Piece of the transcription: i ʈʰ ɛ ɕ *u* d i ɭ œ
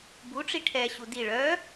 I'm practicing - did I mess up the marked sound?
no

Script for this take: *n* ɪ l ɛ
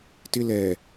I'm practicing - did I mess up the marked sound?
yes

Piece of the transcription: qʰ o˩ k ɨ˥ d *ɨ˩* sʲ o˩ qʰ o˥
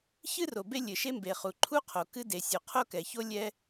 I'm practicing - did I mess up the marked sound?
yes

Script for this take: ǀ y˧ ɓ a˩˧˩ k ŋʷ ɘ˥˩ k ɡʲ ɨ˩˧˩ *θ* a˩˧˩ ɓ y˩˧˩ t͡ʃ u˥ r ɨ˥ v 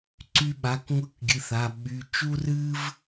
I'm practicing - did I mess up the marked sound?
no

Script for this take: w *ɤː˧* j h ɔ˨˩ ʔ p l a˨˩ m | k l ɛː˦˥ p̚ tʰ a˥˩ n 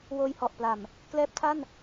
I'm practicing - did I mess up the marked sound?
yes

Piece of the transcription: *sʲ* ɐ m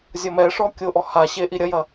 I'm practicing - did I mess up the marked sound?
yes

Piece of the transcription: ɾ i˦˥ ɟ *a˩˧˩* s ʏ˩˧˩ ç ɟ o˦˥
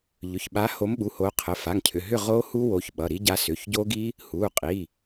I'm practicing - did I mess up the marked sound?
yes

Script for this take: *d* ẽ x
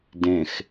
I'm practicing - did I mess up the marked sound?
no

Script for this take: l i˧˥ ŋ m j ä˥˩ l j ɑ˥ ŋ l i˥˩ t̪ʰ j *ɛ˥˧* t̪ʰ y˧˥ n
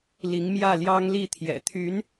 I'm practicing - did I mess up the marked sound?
yes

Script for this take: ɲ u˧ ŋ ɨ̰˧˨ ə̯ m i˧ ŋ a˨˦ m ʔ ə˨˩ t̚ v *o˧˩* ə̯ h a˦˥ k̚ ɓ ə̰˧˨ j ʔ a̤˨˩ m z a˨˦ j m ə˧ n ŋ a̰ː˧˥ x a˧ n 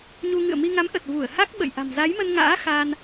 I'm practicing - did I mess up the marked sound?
yes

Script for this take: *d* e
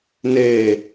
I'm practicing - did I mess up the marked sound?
yes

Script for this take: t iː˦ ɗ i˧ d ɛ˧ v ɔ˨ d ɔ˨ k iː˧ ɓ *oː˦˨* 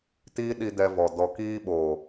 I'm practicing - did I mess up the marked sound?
yes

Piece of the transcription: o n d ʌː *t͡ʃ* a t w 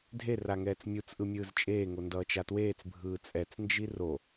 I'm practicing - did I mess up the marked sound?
no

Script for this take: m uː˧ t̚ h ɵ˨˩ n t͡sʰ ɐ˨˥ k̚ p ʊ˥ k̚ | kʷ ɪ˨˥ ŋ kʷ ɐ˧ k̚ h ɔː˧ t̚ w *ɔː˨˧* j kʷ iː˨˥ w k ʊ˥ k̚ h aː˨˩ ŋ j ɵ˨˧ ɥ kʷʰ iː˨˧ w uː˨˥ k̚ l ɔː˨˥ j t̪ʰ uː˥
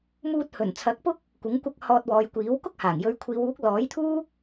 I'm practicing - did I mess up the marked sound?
no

